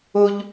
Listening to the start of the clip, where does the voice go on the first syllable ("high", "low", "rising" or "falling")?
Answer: high